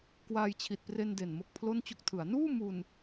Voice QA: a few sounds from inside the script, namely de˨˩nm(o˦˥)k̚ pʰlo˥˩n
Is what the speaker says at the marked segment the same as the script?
yes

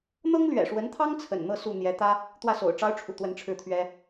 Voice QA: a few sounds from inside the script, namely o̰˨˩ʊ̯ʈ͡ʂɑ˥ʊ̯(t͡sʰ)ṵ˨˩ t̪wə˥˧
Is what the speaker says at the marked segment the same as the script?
no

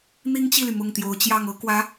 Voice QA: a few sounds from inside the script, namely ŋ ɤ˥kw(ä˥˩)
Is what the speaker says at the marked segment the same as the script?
no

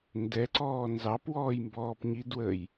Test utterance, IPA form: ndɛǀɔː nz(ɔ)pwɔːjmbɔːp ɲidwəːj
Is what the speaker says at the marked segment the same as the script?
no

